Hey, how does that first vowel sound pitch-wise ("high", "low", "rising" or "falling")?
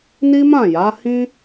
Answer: high